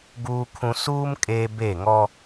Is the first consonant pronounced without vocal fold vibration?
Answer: no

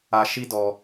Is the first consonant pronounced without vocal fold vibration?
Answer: yes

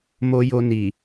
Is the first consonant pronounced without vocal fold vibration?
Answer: no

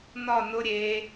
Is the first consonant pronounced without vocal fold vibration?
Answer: no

